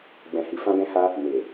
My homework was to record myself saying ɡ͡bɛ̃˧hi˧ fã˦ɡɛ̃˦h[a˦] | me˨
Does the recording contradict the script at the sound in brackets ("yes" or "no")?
no